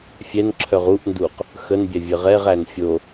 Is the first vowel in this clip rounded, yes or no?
no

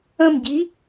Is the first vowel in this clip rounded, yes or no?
no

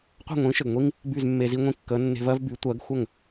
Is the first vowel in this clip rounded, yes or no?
no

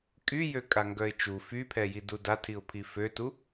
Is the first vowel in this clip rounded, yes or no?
yes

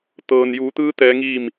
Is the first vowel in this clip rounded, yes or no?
no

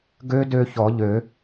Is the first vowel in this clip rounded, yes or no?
yes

